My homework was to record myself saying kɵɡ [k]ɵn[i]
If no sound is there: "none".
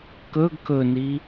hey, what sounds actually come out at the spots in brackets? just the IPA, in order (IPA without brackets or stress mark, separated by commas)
k, i